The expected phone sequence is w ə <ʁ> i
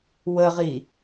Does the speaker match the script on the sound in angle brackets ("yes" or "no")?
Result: yes